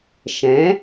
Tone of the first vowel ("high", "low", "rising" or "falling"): rising